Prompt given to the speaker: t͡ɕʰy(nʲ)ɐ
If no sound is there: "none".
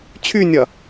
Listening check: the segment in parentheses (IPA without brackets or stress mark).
nʲ